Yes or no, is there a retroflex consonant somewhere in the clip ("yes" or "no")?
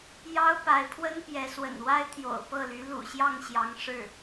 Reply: yes